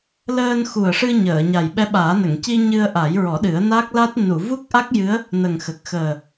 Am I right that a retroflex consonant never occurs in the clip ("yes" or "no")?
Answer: no